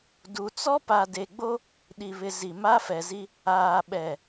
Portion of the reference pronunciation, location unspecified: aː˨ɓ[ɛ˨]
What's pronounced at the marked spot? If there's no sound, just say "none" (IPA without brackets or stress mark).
ɛ˨